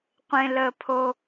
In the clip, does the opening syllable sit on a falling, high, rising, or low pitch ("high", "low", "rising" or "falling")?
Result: high